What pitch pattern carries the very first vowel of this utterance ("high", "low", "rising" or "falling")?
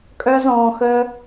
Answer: high